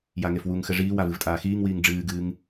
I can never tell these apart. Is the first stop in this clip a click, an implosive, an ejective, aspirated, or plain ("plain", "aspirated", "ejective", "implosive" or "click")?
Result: ejective